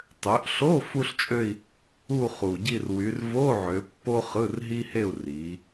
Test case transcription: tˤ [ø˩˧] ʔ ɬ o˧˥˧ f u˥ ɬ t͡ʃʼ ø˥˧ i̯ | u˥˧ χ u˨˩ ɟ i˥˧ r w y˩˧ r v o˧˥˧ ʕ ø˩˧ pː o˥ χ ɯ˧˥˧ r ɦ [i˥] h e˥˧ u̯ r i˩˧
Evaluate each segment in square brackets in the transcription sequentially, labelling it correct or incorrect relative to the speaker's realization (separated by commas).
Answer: correct, correct